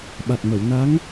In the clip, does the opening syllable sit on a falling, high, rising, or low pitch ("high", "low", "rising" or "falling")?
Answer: low